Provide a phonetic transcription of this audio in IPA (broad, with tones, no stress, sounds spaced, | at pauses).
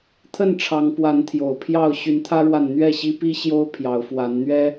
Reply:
t̪ʰ ə˥˨ n ʈ͡ʂʰ ɑ˨˦ ŋ p w a˨˦ n t̪ʰ j o˨˩ ʊ̯ pʰ j ɑ˥˨ ʊ̯ ɕ y˨˦ n t̪ʰ ä˦ ɻ w a˨ n n̪ ɥ ɛ˥˨ ɕ i˦ p i˦ ɕ j o˦ ʊ̯ pʰ j ɑ˨˦ ʊ̯ f w a˨˦ n n̪ ɥ ɛ˦